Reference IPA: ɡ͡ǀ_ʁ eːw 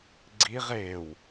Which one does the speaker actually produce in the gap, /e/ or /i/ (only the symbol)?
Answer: i